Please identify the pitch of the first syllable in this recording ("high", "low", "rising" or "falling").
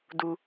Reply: low